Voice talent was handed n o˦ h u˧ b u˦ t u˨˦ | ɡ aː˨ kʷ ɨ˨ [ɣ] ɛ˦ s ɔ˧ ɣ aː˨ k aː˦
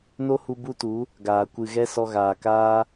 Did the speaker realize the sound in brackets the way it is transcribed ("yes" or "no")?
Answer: yes